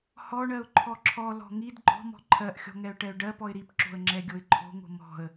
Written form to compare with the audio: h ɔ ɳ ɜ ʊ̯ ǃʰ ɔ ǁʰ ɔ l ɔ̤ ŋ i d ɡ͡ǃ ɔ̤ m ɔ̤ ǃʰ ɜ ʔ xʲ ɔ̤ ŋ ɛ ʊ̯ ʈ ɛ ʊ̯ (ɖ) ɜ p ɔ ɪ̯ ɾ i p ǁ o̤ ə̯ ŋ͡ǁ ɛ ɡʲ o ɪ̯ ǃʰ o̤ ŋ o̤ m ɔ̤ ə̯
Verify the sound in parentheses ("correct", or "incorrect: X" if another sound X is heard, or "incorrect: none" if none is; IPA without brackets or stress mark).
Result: correct